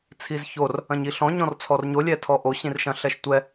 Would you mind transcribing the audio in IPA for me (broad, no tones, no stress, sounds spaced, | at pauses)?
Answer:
t͡sʰ i z ç o r | ɐ̃ ɲ i ɬ ɔ̃ ɲ ɔ̃ r t͡sʰ ɔ r ɲ o lʲ ɛ tʰ ɔ ʔ o ɕ ĩ r ʃ ɐ̃ ɬ ɛ ʃ tʷ ɛ